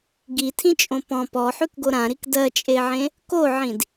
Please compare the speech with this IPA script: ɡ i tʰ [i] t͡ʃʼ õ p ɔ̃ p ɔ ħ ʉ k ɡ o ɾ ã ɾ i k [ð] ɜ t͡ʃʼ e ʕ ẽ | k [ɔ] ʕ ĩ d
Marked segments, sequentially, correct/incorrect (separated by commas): incorrect, incorrect, incorrect